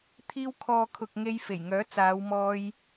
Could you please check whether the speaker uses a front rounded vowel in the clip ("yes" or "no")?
yes